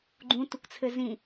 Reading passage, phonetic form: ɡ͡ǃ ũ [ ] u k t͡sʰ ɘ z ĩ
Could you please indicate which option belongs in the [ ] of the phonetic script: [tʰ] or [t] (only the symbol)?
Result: t